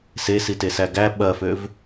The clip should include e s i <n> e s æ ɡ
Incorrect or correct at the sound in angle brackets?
incorrect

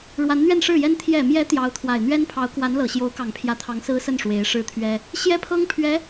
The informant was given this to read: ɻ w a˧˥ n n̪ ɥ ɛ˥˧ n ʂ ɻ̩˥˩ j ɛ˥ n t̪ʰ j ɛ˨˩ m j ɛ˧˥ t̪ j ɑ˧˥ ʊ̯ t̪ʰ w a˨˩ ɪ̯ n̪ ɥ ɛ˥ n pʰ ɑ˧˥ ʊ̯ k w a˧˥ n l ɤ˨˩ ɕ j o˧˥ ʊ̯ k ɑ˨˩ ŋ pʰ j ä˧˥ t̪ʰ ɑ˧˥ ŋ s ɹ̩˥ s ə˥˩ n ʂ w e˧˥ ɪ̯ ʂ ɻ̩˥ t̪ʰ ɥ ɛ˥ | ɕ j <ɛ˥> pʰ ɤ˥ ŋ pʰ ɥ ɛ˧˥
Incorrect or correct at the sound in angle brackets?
correct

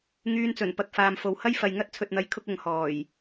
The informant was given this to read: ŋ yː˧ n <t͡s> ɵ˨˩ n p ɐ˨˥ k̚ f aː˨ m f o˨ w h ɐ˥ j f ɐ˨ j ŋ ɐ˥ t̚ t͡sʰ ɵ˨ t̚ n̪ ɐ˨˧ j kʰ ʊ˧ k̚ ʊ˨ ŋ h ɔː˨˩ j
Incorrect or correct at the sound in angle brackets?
correct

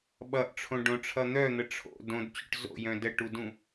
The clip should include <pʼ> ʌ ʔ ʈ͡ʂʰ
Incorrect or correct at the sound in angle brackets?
incorrect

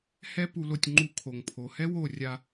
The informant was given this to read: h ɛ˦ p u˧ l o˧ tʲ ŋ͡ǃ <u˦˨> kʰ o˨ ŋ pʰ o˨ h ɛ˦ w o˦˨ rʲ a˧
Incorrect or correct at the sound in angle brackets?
incorrect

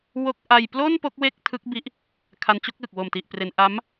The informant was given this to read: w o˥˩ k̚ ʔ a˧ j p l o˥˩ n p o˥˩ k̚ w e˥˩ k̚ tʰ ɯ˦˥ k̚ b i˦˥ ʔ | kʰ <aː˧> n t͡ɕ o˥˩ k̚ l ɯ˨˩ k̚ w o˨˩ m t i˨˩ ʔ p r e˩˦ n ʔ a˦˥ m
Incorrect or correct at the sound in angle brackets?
incorrect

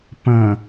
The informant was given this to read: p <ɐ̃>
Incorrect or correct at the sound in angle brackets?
correct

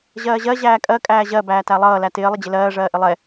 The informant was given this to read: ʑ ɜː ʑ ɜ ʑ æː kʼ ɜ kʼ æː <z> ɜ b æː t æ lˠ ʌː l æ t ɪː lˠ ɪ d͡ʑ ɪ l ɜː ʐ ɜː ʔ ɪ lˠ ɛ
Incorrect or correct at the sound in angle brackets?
incorrect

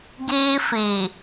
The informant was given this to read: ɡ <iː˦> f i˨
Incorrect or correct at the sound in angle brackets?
correct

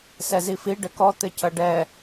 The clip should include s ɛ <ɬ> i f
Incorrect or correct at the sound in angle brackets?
incorrect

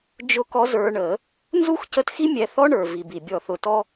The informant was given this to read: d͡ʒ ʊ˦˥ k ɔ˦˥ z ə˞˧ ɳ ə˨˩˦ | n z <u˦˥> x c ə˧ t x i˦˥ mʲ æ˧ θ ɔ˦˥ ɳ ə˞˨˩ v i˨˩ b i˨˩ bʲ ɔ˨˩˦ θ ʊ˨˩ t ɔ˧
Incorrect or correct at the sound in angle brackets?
correct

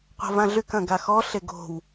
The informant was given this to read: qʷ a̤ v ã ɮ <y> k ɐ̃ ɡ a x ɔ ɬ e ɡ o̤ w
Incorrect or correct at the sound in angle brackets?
correct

